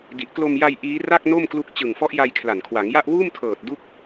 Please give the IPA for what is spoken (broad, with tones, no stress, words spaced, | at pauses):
di˨˩ʔklo˧mja˧j ʔiː˦˥ ra˥˩k̚ no˥˩mklu˦˥k̚ t͡ɕɯ˨˩ŋfɔ˦˥ʔja˧j kʰla˨˩nkʰwa˩˦ŋja˥˩ʔ wuː˥˩mtʰɤː˨˩t̚ du˥˩k̚